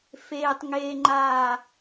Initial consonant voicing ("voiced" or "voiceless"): voiceless